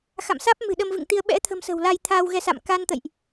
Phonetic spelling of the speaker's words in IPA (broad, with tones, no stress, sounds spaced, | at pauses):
x a̰˧˨ m s aː˦˥ p̚ m ɨ̤˨˩ ɗ ə˧ m v ɨ̰˧˨ ŋ t̪ i˧ ə̯ ɓ ɛ̰˧˥ t̪ʰ ə̤˨˩ m s ə̤˨˩ w l a˧ j t̪ʰ aː˧ w ɣ ɛ˧ s a̰˧˨ m k a˧ n t̪ ə̰˧˨ j ʔ